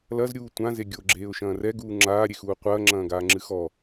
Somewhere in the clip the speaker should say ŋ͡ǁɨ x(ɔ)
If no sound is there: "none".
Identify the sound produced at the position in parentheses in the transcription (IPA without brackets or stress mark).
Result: ɔ